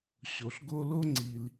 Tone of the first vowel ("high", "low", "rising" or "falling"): low